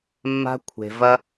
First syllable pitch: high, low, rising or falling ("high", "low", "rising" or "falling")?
high